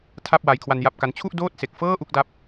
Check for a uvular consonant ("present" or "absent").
absent